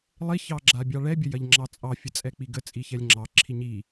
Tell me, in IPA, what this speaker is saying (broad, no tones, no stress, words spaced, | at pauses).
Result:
lˠiçɑɡ͡ǁa bʲɑɭɛbʲə jɐʎŋ͡ǁɑt͡sʼɑfʲə t͡sʼɛk͡piɡə t͡sʼiçɛlʲŋ͡ǁɑ ǁʰiɲi